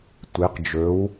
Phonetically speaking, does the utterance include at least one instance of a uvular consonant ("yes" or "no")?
yes